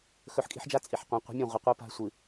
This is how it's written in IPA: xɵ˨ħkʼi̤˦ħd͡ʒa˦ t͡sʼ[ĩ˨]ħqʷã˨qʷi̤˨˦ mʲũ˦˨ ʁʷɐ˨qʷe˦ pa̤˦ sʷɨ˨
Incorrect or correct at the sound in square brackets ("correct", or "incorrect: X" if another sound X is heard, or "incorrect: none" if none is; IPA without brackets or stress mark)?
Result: incorrect: i˨